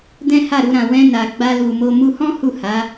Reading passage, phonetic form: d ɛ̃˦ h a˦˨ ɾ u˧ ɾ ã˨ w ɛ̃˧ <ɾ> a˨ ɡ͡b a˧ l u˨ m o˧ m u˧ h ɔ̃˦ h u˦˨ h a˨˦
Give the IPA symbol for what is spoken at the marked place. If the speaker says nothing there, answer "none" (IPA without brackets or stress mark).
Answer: n